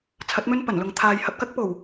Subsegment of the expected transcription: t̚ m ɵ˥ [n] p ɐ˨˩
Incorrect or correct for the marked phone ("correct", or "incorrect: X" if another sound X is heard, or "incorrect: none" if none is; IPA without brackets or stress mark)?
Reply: correct